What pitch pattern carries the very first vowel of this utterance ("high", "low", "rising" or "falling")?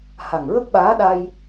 low